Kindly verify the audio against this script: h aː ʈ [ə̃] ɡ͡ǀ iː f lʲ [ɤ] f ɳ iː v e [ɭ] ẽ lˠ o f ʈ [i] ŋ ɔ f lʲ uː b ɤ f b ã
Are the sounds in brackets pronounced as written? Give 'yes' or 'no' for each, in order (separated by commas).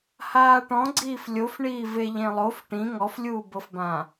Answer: no, no, no, no